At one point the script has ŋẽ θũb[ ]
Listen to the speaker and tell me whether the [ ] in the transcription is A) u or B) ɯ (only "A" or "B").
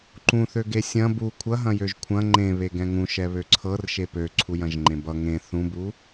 A